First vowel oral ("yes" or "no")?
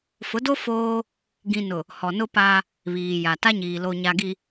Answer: yes